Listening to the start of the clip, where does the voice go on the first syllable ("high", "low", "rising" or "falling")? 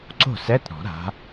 falling